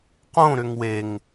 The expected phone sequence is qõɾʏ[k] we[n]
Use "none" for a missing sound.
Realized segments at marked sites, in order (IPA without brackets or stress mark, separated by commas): ŋ, ŋ